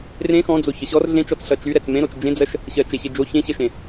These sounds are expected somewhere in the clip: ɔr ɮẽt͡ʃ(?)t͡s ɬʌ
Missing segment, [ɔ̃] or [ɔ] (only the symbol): ɔ